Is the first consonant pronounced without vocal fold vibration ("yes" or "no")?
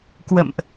yes